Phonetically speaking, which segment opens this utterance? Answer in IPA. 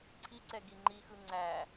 ǀʰ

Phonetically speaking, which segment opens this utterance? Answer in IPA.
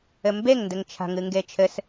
ɘ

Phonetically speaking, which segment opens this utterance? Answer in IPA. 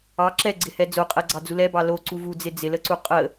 ɑ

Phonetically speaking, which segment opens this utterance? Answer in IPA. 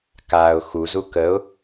k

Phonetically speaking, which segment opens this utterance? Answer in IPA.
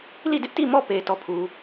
l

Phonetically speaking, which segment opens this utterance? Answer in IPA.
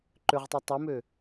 ǃ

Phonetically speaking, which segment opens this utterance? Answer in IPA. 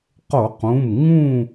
q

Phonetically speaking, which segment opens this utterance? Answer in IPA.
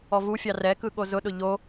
ɔ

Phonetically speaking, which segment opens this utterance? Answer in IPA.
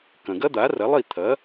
k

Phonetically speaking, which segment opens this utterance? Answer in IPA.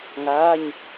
ŋ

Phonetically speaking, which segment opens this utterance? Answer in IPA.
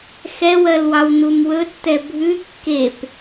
x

